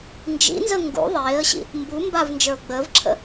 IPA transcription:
nd͡ʒḭnzə ŋɡṵ ðˤeːə̯ɕḭ | mbu mbavnd͡ʒə˞ʊ̯ ɡ͡bəːvǁʰə̰

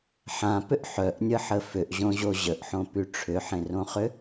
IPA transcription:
ħãpʏʔ ħœʔnʲəħə fʏʔʑõʑo ʑəʔħõpy ʈ͡ʂʰʏħẽrõχʏ

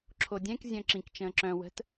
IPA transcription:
ǁʰodʲɛ̃k zʲœ̃ǁĩk t͡ʃə̃ːǁœ̃ wə̤t

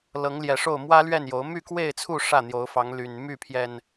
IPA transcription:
lɤ˨˦ŋljɛ˨˩ʂo˥˨ʊ̯ mwä˦lɥɛ˥˨n jo˨˦ʊ̯ my˥˨kwe˥˨ɪ̯t͡sʰu˥˨ ʂä˥˨n̪jo˨˦ʊ̯fɑ˨˦ŋ ly˨˩nmy˥˨pʰjɛ˨˩n

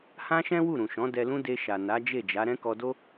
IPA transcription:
hã˦ʃɛ̃˦ wu˦˨ɾũ˨ʃɔ̃˨˦ dɛ˧lũ˦ de˧ʃa˨ na˨˦d͡ʒe˦˨d͡ʒa˨˦ ɾɛ̃˦kɔ˧do˦

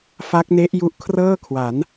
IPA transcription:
fa˦˥k̚ne˦˥ʔ ju˦˥ʔkʰrɤː˥˩kʰwa˩˦n

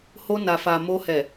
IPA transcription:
ho˧na˨fa˨ mo˧hɛ˨

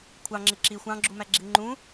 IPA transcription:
kʷʰɑŋ͡ǁɪ ǁi xʷɑ̃ɡ͡ǁumæɡ͡ǁi ŋ͡ǃũ

